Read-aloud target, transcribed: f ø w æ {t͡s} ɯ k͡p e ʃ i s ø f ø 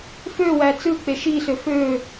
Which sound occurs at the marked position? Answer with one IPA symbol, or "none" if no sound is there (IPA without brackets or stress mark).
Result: t͡s